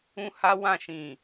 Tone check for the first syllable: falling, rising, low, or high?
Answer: high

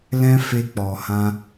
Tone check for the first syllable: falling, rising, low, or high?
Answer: high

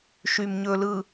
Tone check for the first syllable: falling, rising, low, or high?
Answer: low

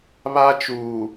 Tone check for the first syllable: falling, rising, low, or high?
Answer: high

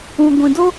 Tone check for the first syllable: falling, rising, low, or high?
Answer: low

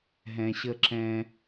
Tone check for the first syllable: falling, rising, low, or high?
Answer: low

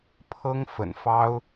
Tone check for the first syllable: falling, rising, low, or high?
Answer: high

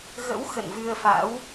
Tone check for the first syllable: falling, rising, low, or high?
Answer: rising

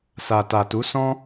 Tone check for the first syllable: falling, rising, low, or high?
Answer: low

